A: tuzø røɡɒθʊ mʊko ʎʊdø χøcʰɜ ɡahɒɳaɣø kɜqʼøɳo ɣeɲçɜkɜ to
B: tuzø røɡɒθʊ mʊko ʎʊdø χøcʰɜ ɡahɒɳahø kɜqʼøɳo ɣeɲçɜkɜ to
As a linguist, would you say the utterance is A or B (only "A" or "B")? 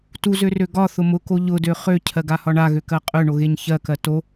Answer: A